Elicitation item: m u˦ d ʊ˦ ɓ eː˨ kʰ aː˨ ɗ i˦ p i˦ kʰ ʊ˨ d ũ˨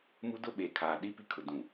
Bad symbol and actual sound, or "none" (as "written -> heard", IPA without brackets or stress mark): none